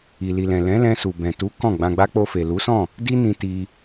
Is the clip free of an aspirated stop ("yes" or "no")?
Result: yes